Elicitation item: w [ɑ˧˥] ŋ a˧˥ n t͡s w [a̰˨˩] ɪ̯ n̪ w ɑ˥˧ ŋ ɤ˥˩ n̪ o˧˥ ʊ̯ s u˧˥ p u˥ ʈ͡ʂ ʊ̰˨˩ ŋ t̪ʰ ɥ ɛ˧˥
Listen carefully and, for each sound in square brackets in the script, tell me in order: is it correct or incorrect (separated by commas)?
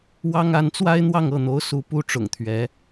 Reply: incorrect, incorrect